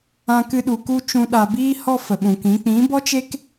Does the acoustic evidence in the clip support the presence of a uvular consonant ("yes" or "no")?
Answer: no